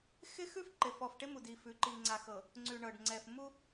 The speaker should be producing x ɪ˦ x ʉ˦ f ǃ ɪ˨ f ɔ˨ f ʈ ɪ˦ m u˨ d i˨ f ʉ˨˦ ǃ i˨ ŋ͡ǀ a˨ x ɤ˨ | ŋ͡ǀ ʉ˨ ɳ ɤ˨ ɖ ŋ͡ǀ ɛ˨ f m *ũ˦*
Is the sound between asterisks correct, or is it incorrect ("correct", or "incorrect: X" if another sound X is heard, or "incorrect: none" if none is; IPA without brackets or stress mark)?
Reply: incorrect: u˦